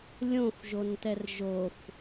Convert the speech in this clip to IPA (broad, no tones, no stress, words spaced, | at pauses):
lʲõfʒontɛr ʒof